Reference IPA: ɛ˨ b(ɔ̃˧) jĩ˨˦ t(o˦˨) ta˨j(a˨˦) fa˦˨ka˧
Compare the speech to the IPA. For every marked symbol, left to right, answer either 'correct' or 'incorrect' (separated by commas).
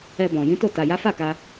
incorrect, correct, correct